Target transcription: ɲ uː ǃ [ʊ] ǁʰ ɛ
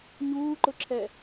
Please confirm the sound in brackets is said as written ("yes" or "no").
yes